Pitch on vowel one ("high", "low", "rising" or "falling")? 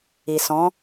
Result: low